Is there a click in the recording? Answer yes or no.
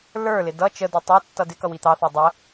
no